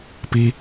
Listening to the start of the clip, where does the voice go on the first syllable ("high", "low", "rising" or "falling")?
low